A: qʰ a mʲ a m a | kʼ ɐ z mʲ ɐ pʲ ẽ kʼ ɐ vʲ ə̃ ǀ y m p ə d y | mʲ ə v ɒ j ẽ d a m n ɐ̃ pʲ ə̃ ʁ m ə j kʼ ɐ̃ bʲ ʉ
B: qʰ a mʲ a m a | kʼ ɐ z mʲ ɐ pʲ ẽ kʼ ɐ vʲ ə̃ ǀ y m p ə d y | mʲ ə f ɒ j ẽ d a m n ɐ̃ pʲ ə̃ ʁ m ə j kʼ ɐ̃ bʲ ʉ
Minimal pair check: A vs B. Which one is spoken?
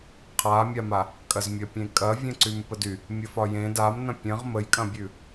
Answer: B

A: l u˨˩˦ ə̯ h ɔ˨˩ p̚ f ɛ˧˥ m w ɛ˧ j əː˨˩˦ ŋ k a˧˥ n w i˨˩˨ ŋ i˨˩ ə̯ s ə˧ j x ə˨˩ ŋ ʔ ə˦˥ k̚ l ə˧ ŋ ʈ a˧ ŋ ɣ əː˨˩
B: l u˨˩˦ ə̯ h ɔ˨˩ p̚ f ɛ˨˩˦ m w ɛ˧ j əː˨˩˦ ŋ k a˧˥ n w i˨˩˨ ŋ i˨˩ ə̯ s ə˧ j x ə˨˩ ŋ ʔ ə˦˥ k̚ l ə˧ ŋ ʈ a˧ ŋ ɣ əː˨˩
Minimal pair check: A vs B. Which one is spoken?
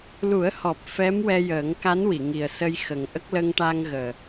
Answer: A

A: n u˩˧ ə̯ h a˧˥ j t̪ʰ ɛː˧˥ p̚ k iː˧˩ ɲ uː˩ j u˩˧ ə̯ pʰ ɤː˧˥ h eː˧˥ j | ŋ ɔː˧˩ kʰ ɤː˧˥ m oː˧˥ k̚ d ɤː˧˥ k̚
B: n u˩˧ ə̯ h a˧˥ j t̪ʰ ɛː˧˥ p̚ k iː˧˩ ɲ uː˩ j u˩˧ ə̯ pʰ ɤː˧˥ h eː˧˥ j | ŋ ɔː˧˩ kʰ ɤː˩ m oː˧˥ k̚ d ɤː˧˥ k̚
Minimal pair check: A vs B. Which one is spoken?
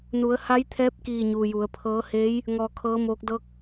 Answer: A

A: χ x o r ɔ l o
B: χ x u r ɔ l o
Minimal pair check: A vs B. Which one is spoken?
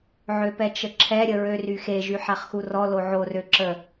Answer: B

